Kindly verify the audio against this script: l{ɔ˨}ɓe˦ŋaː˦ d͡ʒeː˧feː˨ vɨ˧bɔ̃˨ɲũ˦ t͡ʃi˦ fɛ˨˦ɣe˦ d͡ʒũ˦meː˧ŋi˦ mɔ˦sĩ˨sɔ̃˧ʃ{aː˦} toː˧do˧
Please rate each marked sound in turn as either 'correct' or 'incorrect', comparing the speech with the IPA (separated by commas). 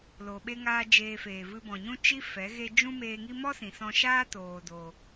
incorrect, correct